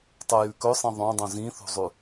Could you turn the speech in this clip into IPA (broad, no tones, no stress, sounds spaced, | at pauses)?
tˤ o j ʉ k ɵ sˤ ĩ ðˤ õ dˤ ũ z ĩ θ ṳ zˤ ʉ